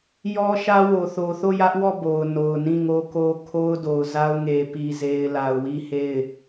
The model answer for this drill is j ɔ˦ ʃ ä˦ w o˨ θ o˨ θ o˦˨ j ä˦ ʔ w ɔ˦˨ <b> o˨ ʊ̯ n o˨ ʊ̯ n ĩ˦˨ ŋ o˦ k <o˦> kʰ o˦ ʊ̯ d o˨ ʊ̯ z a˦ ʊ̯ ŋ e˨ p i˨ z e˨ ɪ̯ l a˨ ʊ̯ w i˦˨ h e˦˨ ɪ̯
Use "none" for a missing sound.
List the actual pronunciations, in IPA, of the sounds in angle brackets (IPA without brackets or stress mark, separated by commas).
b, o˦